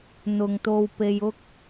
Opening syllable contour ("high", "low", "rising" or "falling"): low